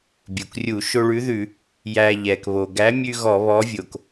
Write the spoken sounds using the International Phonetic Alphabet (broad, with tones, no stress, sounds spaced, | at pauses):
bʲ u˩ k rʲ u˧˩˧ ʃ o˧ ɭ ʉ˨˥ ð ʉ˧˩˧ | j æ˧ ʎ ɛ˩ k β o˩ ɡ æ˨˥ mʲ ʉ˧ ɣ ɔ˧˩˧ β ɔ˨˥ vʲ o˩ k